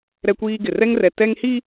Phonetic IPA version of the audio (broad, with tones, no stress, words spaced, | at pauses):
ɾɛ˦kʷiː˦ɡɪ˨ rɛ˦ŋrɛ˨ tɛ˦ŋhi˦